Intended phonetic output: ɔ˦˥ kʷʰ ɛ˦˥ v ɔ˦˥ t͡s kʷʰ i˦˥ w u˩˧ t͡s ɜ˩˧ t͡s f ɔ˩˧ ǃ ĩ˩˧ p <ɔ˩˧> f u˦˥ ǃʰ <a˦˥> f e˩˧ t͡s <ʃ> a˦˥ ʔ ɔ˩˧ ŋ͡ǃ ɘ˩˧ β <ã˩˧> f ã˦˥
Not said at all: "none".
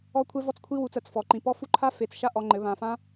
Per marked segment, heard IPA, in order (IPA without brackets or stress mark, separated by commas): ɔ˦˥, a˦˥, ʃ, ã˩˧